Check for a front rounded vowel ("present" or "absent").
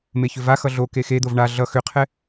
present